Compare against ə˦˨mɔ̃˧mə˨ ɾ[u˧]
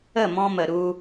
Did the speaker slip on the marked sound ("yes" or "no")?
no